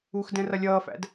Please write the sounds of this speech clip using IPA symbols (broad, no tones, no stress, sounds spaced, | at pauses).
u x d ɛ̃ r ʌ lʲ ʌː f æ̰ d